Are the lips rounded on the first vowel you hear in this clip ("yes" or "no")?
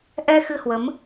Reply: no